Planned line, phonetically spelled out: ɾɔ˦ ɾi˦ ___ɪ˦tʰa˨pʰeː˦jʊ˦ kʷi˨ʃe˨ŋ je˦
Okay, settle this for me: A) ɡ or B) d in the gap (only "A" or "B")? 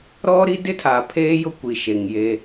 B